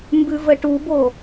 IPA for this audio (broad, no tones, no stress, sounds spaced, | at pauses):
m b ʉ v ə ʈ u b o